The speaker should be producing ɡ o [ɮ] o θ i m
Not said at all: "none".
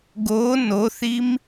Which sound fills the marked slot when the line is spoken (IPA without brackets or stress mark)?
n